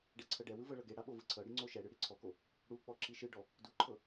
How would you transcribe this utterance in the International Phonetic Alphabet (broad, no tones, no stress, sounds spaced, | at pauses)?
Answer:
ɖ ɛ ǀʰ ɤ ɖ ɛ w ɯ v ɤ ɭ ɤ ɡ e ɽ a ɓ o v ɯ ǀʰ ɤ ɽ i ŋ͡ǀ o ʃ ɛ ɽ ɯ ɽ i ǀʰ ɔ k o | ɽ u k͡p ɔ ǁ i ʃ ɯ ɖ ɔ | d u ǃʰ ɤ